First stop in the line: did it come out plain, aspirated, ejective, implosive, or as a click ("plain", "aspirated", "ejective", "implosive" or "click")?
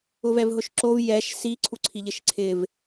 click